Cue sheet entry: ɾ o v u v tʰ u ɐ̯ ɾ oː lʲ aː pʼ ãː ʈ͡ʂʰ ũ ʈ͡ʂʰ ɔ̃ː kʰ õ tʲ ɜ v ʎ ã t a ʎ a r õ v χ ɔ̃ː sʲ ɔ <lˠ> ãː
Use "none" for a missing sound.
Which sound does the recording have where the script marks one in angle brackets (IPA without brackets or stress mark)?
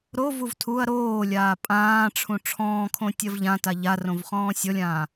lʲ